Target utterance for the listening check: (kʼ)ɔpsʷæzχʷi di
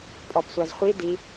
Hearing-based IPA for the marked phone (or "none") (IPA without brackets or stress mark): pʼ